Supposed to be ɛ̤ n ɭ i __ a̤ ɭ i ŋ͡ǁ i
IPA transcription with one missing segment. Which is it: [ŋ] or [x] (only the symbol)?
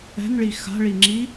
x